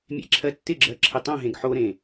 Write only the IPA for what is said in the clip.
mʲḛǁʰɜtːɪɡ͡ǁɜ ǁʰɪtˤõɦẽɡ ħoɾẽ

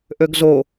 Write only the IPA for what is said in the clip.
ʔøɡzo

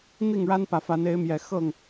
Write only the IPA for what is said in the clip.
n̪i˥˨ŋɻa˦npä˨˩fa˨˦n e˨˦ɪ̯mjɛ˨˩ xɤ˥˨ŋ

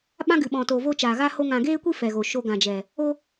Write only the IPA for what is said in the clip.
ɓã˦ɡɨ˨ɓɔ̃˨toː˨ vo˧ t͡ʃaː˨ɣa˦ho˦ŋã˧ ɡeː˦kʷi˦ fɛ˨ɣo˨ʃo˧ ɡã˨d͡ʒɛ˨ | o˦

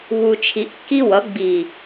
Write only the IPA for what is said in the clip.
βu˨t͡ʃʰi˨ʔkːi˦wʌ˨˦ ɡ͡bi˨

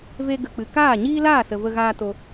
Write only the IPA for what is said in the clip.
ve˧ɡə˨k͡pɨ˨ kaː˦˨ɲiː˦laː˦˨ sə˨və˧ɣaː˧ to˧

